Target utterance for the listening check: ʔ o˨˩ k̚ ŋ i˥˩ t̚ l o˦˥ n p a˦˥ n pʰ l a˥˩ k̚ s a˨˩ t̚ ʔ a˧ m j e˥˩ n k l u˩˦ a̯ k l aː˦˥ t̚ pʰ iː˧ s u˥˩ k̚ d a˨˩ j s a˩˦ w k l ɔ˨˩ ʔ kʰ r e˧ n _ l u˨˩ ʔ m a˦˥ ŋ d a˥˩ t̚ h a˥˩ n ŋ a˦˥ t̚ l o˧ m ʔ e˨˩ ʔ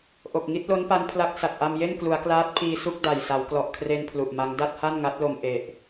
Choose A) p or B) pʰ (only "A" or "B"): B